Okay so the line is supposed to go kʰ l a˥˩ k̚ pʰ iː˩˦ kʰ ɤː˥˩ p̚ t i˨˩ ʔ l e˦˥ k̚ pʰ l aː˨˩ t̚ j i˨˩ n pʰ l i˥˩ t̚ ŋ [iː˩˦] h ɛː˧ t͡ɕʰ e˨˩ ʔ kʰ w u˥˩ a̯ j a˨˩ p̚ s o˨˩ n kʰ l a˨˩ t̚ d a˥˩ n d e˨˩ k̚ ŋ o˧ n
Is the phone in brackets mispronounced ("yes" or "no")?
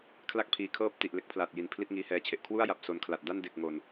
yes